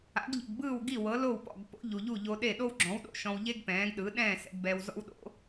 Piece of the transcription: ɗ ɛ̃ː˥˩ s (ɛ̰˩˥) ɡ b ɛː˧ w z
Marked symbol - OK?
yes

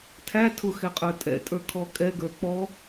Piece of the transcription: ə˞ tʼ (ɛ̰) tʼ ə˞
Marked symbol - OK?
yes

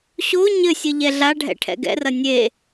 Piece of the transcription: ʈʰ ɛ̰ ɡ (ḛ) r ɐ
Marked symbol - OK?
no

